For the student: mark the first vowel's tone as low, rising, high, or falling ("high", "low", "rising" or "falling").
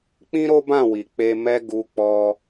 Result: high